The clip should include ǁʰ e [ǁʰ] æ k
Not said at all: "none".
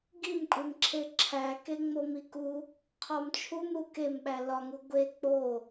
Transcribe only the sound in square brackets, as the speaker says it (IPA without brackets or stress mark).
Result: ǁʰ